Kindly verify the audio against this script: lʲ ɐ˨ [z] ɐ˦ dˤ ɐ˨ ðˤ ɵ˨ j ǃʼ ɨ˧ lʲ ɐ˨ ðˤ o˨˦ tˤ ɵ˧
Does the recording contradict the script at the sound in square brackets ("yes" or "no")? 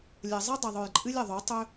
yes